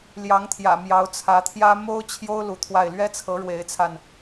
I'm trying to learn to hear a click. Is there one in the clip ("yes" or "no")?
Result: no